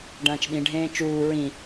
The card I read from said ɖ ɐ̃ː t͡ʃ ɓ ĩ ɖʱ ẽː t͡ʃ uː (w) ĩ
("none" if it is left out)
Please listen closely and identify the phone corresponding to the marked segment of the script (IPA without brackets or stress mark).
ɹ